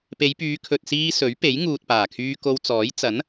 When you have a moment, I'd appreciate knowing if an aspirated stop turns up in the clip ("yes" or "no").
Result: yes